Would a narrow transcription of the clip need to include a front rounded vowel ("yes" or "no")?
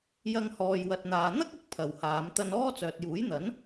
yes